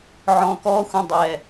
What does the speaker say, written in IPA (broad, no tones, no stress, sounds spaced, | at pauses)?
ʕ ɔ̃ k ɔ xʷ ə̃ dˤ ɛ